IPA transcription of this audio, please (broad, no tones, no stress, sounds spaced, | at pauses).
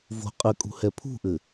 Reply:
v o̤ qʼ ɘ kʼ ṳ h ɛ pʰ ṳ ʔ ɘ